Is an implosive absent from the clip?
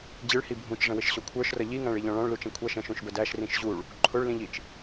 yes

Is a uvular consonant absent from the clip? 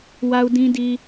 yes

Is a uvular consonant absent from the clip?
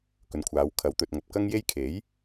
yes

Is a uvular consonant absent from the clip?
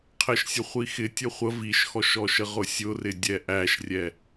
no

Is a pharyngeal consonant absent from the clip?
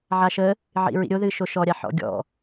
no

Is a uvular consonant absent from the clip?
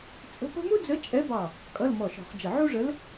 no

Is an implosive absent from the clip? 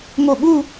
no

